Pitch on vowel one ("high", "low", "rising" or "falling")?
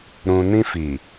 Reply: low